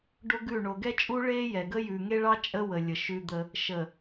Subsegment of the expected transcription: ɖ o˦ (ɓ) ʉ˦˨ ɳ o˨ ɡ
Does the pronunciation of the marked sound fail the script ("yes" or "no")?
yes